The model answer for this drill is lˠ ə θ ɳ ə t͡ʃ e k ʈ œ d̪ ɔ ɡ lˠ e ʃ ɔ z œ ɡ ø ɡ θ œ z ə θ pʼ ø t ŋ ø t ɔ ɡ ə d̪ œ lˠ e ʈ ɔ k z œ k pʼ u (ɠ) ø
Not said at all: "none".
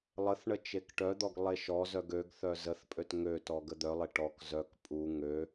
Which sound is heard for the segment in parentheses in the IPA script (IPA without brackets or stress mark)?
ŋ